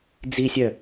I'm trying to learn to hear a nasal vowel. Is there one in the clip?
no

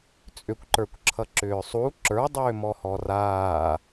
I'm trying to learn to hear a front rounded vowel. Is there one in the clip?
yes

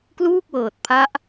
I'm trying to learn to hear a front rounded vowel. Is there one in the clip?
no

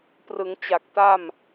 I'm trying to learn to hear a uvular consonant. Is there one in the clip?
no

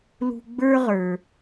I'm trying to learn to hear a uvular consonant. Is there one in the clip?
yes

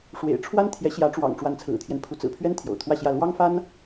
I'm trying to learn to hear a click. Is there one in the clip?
no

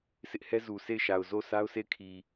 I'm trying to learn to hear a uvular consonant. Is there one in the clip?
no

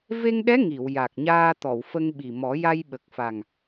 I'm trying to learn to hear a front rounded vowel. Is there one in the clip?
no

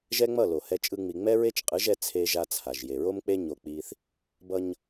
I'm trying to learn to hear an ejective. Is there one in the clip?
yes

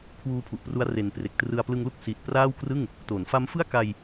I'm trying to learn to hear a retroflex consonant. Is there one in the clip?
no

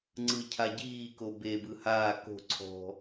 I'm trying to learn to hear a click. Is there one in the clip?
yes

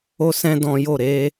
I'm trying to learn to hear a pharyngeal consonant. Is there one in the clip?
no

